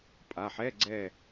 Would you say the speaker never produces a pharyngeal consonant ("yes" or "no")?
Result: no